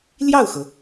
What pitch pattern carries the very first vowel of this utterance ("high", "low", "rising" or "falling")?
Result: falling